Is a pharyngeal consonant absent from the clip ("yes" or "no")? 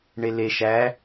yes